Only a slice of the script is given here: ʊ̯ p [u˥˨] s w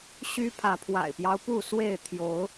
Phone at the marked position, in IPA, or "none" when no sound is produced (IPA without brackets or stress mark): u˥˨